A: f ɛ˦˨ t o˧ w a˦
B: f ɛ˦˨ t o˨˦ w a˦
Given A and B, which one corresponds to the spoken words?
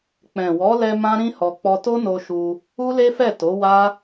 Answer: B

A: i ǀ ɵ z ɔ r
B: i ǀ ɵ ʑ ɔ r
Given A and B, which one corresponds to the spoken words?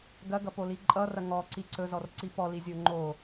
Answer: A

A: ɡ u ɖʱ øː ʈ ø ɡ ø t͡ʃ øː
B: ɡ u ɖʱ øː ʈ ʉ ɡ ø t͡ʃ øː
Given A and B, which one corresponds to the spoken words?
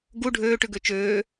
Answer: B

